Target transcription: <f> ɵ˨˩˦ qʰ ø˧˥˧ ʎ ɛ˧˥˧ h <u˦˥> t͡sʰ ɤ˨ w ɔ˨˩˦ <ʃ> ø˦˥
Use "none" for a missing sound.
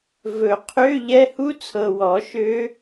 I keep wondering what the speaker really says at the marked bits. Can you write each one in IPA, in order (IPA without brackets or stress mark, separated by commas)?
v, u˦˥, ʃ